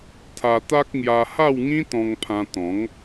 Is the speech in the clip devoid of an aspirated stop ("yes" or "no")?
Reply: no